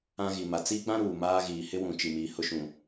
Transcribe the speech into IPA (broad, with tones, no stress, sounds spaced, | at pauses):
ã˦ ɣ i˨ m a˨ t͡s iː˦ ɡ͡b ã˦ ɾ uː˨ m aː˦ ɣ iː˨ h ɪ˦ w ũ˨ t͡ʃ i˨ m iː˨ h ʊ˦ ʃ ũ˨